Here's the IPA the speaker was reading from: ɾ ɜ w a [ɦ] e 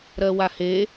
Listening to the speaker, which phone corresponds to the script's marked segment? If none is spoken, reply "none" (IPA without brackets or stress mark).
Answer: h